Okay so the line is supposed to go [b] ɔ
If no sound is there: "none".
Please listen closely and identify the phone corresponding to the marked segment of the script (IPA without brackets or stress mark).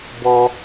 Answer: b